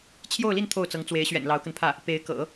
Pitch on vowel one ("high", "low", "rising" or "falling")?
falling